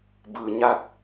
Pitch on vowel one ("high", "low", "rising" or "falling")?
low